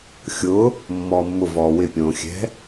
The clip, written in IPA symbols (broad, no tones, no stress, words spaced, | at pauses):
xʲʊ | mːɔːmːʊ vɔːwɪ pʲõːxʲɛ̤